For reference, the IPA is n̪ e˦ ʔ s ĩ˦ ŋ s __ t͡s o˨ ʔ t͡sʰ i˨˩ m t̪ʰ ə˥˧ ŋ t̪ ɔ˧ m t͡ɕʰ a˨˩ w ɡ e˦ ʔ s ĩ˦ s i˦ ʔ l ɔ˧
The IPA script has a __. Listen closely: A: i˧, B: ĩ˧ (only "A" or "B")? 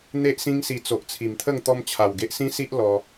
A